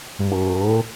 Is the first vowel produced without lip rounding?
yes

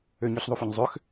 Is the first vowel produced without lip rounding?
no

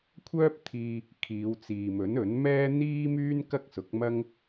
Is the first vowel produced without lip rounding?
no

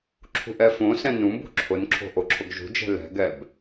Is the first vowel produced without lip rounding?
no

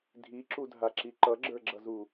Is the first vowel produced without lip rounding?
yes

